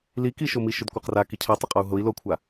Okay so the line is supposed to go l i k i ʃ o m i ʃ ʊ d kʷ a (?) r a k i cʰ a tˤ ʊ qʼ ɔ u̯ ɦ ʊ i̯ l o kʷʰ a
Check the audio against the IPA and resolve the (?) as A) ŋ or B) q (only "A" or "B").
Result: B